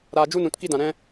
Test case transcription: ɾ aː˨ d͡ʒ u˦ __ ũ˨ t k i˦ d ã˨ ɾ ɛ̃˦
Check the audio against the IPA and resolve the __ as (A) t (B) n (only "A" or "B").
B